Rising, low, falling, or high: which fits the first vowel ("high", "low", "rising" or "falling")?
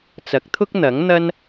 rising